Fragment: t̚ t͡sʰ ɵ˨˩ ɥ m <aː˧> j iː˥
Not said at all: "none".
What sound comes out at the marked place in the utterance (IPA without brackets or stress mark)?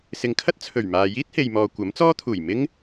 aː˨